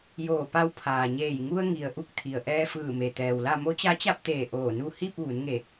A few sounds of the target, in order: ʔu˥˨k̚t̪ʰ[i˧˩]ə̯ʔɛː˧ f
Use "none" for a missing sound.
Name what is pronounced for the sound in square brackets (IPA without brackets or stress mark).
i˩